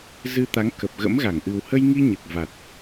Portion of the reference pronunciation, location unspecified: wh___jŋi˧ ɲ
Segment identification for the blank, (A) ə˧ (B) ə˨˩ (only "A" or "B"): A